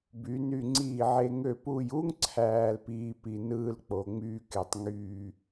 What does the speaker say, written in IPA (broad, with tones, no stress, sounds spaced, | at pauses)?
b y˩˧ n y˧˩ ŋ͡ǀ iː˧˩ ʕ e˧ ŋ ø˧˩ p u˧˩ j u˥ ŋ ǀʰ æː˧ l p iː˧ p i˧˩ n ɯː˧ l k͡p o˩˧ ŋ͡m yː˥ k e˧˩ tˤ ŋ yː˧˩